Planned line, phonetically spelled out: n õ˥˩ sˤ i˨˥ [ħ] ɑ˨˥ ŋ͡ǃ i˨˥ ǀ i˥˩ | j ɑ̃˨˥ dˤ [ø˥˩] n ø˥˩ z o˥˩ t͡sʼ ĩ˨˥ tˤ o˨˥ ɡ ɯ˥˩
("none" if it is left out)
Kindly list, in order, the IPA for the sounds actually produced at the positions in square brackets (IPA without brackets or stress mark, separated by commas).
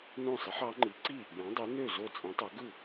ħ, ø˨˥